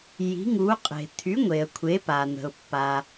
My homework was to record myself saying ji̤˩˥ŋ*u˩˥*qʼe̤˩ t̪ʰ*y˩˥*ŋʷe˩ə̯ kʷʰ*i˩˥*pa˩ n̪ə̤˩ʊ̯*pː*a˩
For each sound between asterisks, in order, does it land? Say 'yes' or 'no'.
yes, yes, no, yes

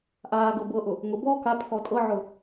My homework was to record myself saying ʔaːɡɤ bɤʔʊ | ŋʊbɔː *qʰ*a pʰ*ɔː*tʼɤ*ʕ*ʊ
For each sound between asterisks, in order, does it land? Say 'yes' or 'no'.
no, no, yes

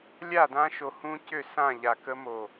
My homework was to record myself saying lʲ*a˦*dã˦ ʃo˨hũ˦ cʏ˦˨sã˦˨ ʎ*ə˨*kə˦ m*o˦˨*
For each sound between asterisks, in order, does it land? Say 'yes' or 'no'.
no, no, no

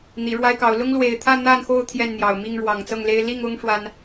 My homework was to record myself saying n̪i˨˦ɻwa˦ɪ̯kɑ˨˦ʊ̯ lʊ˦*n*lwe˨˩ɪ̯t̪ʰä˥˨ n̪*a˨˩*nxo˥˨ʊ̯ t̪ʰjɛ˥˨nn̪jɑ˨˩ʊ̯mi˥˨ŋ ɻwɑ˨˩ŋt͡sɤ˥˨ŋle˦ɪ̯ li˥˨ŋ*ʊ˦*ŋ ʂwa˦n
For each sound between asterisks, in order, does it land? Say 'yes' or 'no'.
no, no, yes

